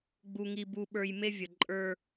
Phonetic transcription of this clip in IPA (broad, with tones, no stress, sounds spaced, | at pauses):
ɡ͡b u˦ ŋ i˦ b u˦ ɓ ə˞˦ j m e˦ vʲ ə˨ ǃʼ ə˞˦